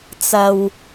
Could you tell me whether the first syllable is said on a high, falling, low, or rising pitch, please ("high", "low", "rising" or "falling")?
low